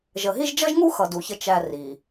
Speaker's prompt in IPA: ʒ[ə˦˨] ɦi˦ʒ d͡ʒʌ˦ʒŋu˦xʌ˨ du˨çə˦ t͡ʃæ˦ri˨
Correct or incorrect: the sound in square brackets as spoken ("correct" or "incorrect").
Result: incorrect